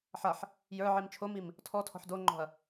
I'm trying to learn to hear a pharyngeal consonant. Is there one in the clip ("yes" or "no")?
yes